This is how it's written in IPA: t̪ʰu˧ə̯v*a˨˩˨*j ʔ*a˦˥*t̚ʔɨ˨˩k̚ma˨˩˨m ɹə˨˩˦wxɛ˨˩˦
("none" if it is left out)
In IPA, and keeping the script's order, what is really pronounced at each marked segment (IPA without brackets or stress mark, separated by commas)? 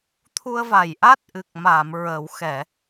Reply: a˨˩˨, a˦˥